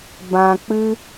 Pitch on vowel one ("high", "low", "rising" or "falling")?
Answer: low